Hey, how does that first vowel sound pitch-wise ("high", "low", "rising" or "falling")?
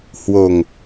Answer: low